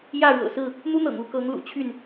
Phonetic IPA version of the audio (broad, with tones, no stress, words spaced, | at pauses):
jä˥˨ɻɤ̰˨˩sɹ̩˥˨ | n̪u˦n̪ɤ̰˨˩ŋ u˥˨kɤ˨˦ŋ lṵ˨˩t͡ɕʰy˥˨n